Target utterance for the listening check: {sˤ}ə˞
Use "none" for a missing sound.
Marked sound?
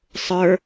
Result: sˤ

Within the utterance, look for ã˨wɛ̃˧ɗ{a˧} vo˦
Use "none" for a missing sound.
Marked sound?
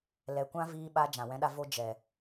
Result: a˧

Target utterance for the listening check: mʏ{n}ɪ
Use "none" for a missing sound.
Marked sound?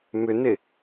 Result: n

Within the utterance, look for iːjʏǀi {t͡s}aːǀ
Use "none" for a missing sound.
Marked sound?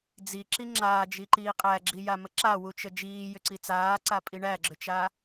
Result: t͡s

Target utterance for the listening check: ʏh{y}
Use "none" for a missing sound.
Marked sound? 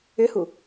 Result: u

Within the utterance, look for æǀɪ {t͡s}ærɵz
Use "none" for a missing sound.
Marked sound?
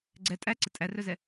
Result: tʼ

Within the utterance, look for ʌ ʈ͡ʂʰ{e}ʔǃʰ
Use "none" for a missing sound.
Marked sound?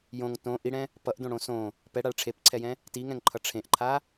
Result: ẽ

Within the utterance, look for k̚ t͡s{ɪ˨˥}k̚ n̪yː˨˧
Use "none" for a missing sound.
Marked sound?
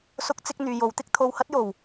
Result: ɪ˥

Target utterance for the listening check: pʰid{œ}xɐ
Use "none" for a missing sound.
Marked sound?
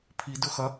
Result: ɵ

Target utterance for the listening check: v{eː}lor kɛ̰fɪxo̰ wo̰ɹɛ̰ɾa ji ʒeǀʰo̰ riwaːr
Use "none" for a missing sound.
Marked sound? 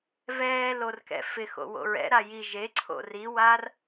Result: ɛː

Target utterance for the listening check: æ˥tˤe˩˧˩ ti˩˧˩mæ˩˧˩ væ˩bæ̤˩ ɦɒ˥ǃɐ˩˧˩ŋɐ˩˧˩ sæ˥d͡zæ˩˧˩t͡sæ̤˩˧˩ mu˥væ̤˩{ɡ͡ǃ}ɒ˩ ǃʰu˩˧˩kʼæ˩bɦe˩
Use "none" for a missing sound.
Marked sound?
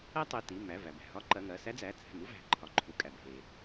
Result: ǃʰ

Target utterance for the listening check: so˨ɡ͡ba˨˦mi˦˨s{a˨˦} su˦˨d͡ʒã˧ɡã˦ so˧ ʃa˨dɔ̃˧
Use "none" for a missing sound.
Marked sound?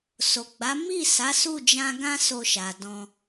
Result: a˨˦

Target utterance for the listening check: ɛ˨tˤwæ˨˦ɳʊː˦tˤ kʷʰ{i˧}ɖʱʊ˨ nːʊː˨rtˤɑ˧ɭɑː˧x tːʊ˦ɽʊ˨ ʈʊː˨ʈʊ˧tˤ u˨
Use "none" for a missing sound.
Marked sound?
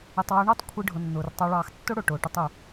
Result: i˧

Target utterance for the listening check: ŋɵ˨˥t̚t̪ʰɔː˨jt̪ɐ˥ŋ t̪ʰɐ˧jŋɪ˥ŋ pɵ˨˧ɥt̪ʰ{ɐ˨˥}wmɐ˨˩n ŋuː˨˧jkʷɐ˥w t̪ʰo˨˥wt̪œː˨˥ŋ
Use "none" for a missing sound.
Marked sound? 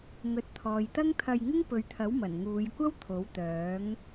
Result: ɐ˨˥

